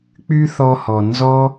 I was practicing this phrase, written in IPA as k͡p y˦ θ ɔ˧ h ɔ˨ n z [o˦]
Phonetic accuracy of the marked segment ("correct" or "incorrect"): incorrect